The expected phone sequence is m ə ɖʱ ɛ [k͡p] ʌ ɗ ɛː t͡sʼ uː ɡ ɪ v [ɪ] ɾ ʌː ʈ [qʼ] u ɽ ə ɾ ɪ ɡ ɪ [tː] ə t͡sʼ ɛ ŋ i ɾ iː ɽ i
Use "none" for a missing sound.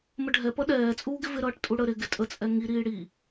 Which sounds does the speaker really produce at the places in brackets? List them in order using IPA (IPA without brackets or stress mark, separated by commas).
p, ɪ, tʼ, tʼ